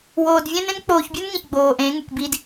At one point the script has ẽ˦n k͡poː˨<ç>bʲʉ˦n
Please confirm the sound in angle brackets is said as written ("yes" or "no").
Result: yes